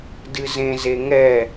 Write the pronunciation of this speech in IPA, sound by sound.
d ɨ z ẽ z e ŋ ɛ

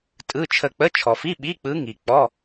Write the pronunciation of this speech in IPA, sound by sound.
tʼ ɯ˧˥˧ t͡ʃʰ ə˦˨ k͡p ə˧˥˧ t͡ʃʰ ɔ˨ f i˧˥˧ ɓ i˧˥˧ k͡p ɯ˧˥ ŋ i˨ k͡p ɔ˧˥˧

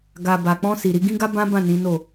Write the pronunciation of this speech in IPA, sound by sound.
ɡ a˨ b a˨ k͡p ɔ̃˧ s i˨ ɾ i˧ ɡ ĩ˦ ɡ a˦ b ã˦ b ã˦˨ n ĩ˨˦ n o˦˨

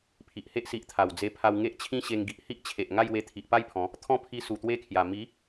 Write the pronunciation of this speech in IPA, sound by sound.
pʰ i˨ ʔ h e˦ ʔ s i˨ ʔ t̪ʰ a˨˩ w d͡z e˧ pʰ a˧ w ŋ e˦ ʔ t͡ɕʰ ĩ˦ ɕ e˧ ŋ ɡ i˨ ʔ h i˦ ʔ t͡ɕʰ e˨ ʔ ŋ a˥˧ j w e˧ t̪ʰ i˨ ʔ p a˥˧ j pʰ ɔ̃˨˦ | t̪ʰ ɔ̃˥˧ pʰ i˧ s u˨˩ t̪ w e˥˧ kʰ j a˨˩ m i˨˦

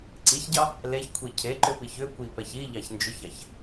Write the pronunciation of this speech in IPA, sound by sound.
ǀ i ç ɟ ɑ | l e ç kʷʰ i cʰ e ǃ ʏ p i ç ʏ kʷ i p ɛ ç i ʎ ɑ ç n d͡ʒ ʏ ç ɑ ç

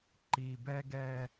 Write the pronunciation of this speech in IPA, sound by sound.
ǃ i˨ b ɛ˦ ɡ ɛ˦

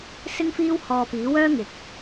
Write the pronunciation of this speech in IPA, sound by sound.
s ɪ˥ ŋ f iː˥ w h ɔː˧ p iː˨˥ w œː˥ ŋ ɪ˨˥ k̚

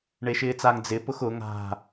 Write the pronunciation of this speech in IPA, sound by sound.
ɳ e ʃ ɪː t͡s a ŋ d͡z ɪ p ʊ x ʊ ŋ a̤

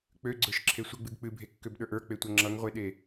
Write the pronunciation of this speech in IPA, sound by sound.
k͡p ø ɡ͡ǀ ə˞ ʃ ǁʰ e sʷ ə ɡ͡b ɨ ɡ k͡p ɨ bʱ e kː ø b ɗ ə˞ ʔ ə˞ k͡p e tʷ ʌ ŋ͡ǁ ʌ ŋ ʁʷ e ɗ e

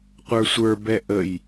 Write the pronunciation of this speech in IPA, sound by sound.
qʷ ə˞ sʷ ə˞ b ɛ ʔ ə j

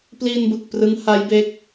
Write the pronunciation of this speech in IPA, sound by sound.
p l iː˧ n b ɯ˨˩ k̚ p r ɯ˦˥ ŋ h a˦˥ j b e˦˥ k̚

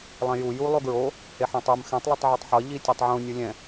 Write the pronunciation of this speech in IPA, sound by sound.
lˠ ɛ̃ j u j u lˠ o ɡ ɹ o | h e ħ ɛ̃ tˤ u m x ɛ̃ tˤ lˠ i tˤ ʕ u tˤ ħ ʌ ʎ i tʲ e tˤ ʕ ũ nʲ ɯ lʲ ɛ̃

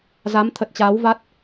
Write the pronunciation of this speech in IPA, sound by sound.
z a˨˦ m t̪ʰ ə˨˩ t̚ t͡ɕ aː˨˦ w v a˦˥ t̚

